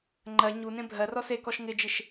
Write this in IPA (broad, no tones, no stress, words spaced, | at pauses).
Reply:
ŋ͡ǃɜ ɲunẽ bʱɜrɔ sekɔʃ ŋɪd͡ʒɪʃ